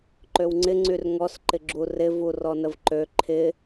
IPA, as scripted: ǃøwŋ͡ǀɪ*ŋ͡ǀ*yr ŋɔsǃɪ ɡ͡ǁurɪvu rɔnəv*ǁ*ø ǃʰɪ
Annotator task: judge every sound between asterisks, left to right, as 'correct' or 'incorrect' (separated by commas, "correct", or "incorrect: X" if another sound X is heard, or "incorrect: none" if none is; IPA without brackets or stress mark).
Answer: correct, incorrect: ǃ